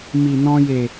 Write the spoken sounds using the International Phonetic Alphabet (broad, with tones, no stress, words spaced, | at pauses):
mi˨nɔ̃˧je˨